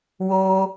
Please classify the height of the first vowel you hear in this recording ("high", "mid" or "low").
mid